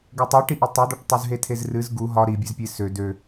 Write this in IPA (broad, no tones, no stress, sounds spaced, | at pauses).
ɡ o tˤ ɨ ʈ i ʔ o tˤ o d̪ ɒ ʈ tˤ u z ɦ e tʰ e z r ɨ z ɡ u ɦ ɒ ɾ i bʲ ɨ z pʲ e s ø d ø